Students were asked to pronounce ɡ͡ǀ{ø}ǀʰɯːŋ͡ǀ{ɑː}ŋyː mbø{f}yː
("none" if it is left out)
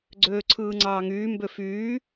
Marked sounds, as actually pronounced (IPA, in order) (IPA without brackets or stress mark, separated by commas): øː, ɑː, f